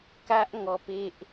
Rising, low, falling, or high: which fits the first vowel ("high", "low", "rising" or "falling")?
high